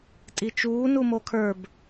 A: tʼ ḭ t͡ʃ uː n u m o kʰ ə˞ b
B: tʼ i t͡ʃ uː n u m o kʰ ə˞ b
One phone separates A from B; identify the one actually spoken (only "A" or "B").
B